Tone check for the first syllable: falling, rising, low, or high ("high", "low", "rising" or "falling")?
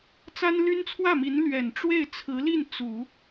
high